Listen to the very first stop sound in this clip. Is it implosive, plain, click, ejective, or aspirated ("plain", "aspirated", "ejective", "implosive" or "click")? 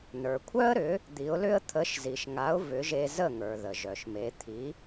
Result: aspirated